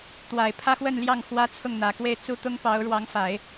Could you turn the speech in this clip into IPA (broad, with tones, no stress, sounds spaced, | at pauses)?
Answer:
t̪ w a˨˩ ɪ̯ pʰ ä˥ x w ə˥˧ n l j ɑ˥˩ ŋ x w ä˥ t͡sʰ ʊ˥˩ ŋ n̪ ä˨˩ k w e˥˧ ɪ̯ t͡s u˥˩ t̪ ʊ˥ ŋ p ɑ˧˥ ʊ̯ ɻ w ɑ˧˥ ŋ f a˨˩˦ ɪ̯